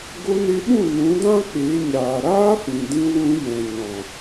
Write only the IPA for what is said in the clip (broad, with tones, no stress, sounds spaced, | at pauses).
ɡ o˧ n e˧ ɓ ũ˦˨ n ũ˨˦ d ã˦ k͡p e˨˦ ɲ aː˨ ɾ aː˦ f ĩ˨ d ĩ˧ w ũ˧ j ɛ̃˨ ɲ ɔ̃˨